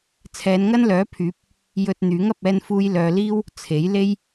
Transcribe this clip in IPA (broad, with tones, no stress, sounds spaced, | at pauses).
t͡sʰ ɛː˨˧ n ŋ ɐ˥ n l œː˨˥ pʰ yː˨˥ p̚ | j ɵ˧ t̚ n̪ yː˨˥ ŋ ɐ˨ p̚ ɛː˧ n f uː˧ j l œː˨ l iː˥ w | t͡sʰ e˨˥ j l e˥ j